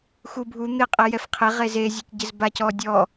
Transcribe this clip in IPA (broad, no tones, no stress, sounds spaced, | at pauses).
x u bʱ u n̪ ɪ qʼ ɛ j ɛ f qʰ e ʁ e z e zʲ ɔ c ɟ ɪ z b a c ɔ dʲ ɔ